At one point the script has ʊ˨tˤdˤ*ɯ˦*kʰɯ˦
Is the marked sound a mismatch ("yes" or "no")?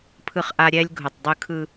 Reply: no